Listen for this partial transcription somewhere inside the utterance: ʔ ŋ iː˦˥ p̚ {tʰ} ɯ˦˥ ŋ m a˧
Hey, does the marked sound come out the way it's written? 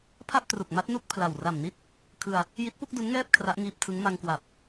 yes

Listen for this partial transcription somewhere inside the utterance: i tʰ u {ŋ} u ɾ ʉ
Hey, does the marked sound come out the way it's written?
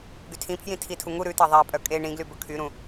yes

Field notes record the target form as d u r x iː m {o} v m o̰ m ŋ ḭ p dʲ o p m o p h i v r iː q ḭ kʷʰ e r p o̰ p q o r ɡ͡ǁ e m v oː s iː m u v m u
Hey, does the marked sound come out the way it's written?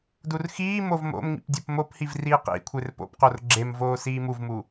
yes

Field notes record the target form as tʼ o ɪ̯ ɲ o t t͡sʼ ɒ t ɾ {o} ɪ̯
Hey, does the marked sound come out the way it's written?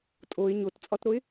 yes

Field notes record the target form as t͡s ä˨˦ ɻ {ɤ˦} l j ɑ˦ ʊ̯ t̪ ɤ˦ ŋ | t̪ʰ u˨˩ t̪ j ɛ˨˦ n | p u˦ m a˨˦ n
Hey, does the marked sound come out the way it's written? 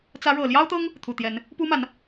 no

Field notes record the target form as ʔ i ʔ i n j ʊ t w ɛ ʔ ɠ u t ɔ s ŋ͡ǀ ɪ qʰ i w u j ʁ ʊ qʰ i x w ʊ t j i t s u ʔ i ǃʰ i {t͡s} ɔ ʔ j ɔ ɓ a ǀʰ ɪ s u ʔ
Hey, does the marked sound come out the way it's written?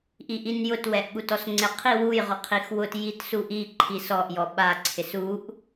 no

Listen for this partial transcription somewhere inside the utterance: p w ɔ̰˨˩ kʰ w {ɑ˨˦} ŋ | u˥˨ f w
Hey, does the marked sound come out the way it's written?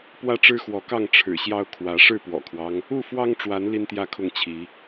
no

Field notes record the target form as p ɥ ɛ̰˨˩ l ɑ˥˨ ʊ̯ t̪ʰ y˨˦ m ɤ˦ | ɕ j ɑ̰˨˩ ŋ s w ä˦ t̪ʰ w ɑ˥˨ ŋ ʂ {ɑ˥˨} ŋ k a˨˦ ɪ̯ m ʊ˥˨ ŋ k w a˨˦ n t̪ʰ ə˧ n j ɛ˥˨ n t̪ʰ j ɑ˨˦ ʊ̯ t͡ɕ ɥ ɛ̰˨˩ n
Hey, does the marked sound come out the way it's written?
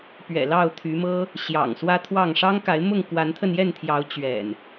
no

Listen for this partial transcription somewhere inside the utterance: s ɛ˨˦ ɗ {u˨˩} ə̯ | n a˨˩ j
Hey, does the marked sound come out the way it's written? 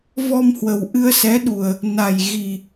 yes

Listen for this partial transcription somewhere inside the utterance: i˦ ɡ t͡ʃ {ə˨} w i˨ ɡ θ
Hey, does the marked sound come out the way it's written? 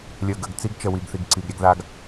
yes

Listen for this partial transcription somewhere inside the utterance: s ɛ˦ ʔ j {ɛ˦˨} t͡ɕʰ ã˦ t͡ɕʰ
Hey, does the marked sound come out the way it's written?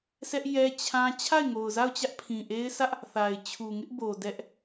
no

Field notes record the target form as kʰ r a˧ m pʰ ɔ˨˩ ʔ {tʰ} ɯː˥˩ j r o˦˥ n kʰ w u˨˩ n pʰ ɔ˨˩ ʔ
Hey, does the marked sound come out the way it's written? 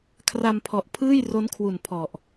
no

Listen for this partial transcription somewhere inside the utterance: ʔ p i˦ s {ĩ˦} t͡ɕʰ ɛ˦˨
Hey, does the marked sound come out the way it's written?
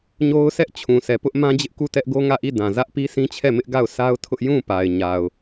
yes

